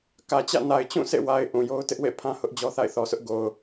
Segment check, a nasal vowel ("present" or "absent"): present